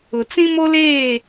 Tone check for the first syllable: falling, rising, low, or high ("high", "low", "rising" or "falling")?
low